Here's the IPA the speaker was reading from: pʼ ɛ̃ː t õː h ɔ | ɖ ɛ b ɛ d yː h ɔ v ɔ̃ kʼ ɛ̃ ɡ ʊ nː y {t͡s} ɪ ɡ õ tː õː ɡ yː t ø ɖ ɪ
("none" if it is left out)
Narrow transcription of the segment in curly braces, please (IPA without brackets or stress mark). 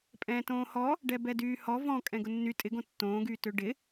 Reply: tʼ